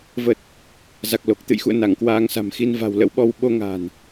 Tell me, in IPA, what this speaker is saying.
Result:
v ə˨˩ t̚ | z a˨˩ k̚ l o˨˩ k̚ t̪ ɨ̰˧˨ j x ṵ˧˨ ə̯ n a˧˩ ŋ k w aː˧ ŋ s a̤˨˩ m x i˧ n v a̤˨˩ w l ə̰˧˥ w ɓ ɔ˧ w ɓ o˧ ŋ a̤˨˩ n

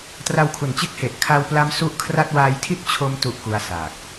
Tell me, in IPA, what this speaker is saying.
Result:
t r a˧ w kʰ u˨˩ n t͡ɕ e˦˥ k̚ h e˨˩ ʔ kʰ a˧ w p l a˦˥ m s u˦˥ ʔ kʰ r a˥˩ t̚ w aː˧ j tʰ i˥˩ t̚ t͡ɕʰ o˧ m t u˥˩ ʔ k u˦˥ a̯ s aː˨˩ k̚

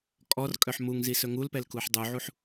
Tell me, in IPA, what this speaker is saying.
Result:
kʼ ɔ r kʼ œ ħ m u ŋ z i s ɵ ŋ u l p ɛ l k u ħ dˤ u ʕ u ħ

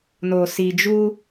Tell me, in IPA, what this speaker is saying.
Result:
n o˨ s i˨ d͡ʒ u˦

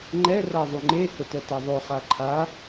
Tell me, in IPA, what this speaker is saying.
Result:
ŋ͡ǃ ɛ r a ðˤ u ŋ͡ǃ e h ʊ t ɛ t a ðˤ o χ a ǃʰ a

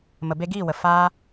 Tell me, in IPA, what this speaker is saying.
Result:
m ə˨ b e˧ ɡ iː˦˨ w ə˨ f aː˧

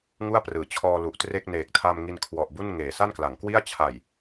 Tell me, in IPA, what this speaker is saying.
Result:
ŋ u˥˩ a̯ p r ɯː˩˦ t͡ɕʰ ɔː˧ l u˨˩ ʔ t r e˥˩ k̚ n eː˨˩ k̚ tʰ a˧ m ŋ i˧ n kʰ w ɔ˨˩ ʔ b u˥˩ n ŋ eː˩˦ s a˥˩ n k l a˩˦ ŋ k w i˥˩ a̯ t͡ɕʰ a˨˩ j

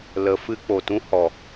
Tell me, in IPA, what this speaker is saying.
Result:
l ə˨ f ɨ˧ k͡p o˨ t ũ˧ h ɔ˨

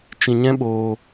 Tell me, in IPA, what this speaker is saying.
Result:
t͡ʃ ĩ˧ ɲ ɛ̃˦ ɓ oː˧

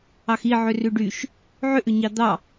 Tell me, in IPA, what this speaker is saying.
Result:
ɑ x i ʕ ʏ r ʉ ɖ y ʃ | ʕ ʏ ʔ ʏ ɲ ɑ d̪ ɑ

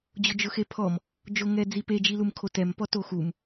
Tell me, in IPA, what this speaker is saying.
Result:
d͡ʑ ʊ d͡ʒ ʊ x e pʰ ɔ m | d͡ʒ o ŋ ɛ d͡z i p e d͡ʒ i l u m kʰ o t ɛ m p ɔ t o x u m

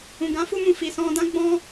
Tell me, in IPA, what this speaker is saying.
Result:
ũ˨ ɡ ã˨˦ f u˧ m ũ˨ f i˨ s ɔ̃˧ d ã˦ ɡ͡b ɔ̃˦

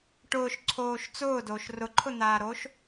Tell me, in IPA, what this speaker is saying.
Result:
ʈ ʊː ʃ ǀʰ oː ʃ t͡s ʊː d oː ʃ r ʊ ǃʰ ʊ n̪ aː ɾ o ʃ

